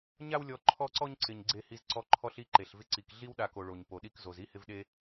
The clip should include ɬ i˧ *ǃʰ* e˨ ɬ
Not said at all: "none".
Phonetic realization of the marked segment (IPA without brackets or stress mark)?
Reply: ǃ